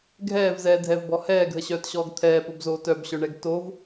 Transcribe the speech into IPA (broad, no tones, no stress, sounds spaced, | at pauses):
ɡʱ ɛː v z ɛː dʱ ɛ v b ɔ h ɛː ɡʱ ə ɕ œː t ɕ ɔː ɡ t̪ʰ ɛː p o b z oː t œ b ɕ œ ɳ ɛ ɡ t o v